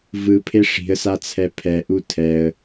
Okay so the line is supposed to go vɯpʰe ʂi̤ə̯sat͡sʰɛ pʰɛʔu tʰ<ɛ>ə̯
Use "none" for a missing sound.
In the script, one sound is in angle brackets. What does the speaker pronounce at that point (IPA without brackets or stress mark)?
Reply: ɛ